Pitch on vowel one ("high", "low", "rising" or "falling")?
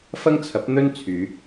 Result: high